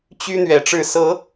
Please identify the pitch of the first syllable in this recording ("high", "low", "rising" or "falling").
high